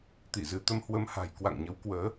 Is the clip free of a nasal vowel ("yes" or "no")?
yes